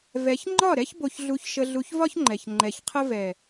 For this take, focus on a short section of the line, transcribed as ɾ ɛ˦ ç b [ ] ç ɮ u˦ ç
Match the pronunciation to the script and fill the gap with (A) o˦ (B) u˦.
A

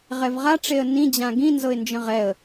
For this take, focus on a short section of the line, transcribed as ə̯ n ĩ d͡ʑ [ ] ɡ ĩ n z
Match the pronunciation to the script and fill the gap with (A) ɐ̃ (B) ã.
B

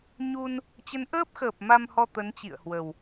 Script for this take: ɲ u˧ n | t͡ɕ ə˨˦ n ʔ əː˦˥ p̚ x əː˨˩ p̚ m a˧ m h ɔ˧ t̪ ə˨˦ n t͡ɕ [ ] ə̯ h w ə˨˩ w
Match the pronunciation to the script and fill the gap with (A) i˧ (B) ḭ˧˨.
B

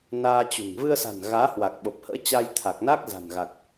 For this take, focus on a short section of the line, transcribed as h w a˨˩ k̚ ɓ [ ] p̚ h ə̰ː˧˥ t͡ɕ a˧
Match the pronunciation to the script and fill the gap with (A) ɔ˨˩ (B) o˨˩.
B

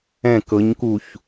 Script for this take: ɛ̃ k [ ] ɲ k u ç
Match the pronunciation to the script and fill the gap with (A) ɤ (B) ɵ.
A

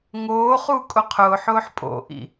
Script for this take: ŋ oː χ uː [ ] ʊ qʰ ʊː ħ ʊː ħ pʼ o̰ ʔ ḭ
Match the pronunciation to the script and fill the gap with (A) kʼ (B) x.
A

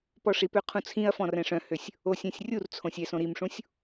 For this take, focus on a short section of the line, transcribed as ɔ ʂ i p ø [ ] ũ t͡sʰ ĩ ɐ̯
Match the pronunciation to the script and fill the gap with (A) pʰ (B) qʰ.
B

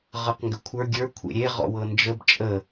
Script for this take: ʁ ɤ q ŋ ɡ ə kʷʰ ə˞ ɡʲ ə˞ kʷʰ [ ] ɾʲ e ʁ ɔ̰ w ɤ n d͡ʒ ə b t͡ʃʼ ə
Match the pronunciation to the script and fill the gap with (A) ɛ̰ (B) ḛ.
B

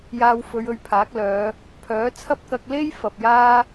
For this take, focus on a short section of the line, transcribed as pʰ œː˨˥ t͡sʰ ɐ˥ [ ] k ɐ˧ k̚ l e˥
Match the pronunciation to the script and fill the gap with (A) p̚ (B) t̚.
A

